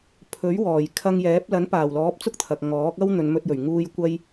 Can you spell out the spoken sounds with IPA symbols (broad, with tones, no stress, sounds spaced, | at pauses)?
pʰ ɵ˨˥ ɥ w ɔː˨˩ j kʰ ɐ˧ ŋ j ɛː˨˥ p̚ l ɐ˨˥ n p aː˨˩ w l ɔː˨˥ p̚ t͡s ʊ˥ k̚ t̪ʰ ɐ˨ k̚ ŋ ɔː˨˥ k̚ ɐ˥ w n̪ ɵ˨˧ n m ɵ˧ t̚ j ɵ˨˩ ɥ ŋ uː˧ j kʷ ɐ˧ j